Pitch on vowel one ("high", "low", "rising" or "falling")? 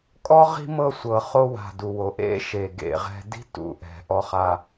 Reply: high